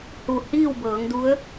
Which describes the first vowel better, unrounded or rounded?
rounded